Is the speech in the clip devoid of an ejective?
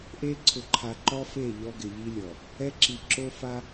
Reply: yes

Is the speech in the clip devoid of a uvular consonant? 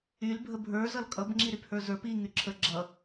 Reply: yes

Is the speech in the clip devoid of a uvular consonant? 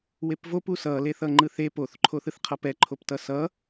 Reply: no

